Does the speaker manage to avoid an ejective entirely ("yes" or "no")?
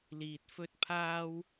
yes